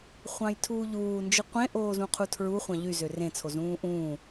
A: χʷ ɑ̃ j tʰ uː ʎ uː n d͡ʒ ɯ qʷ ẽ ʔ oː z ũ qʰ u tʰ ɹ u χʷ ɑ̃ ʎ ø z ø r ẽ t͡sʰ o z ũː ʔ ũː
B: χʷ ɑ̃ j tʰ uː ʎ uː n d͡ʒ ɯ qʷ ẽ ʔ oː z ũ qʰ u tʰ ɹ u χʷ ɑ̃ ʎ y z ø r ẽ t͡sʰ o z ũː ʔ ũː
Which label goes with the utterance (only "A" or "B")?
B